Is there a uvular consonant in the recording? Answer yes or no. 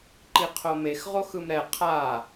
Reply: yes